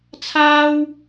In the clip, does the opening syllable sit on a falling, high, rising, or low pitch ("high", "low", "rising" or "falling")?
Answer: high